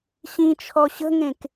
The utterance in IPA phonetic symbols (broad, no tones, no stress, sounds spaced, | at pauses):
ɕ ĩ t͡ʃʰ ɔ ɕ ə̤ ŋ ẽ k